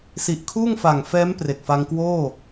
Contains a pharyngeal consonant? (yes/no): no